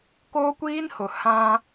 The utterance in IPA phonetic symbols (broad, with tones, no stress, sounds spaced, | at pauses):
k oː˦ kʷ iː˦ n h ʊ˨ h ã˦